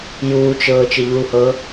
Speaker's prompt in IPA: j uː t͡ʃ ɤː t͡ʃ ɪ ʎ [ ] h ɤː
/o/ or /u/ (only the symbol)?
u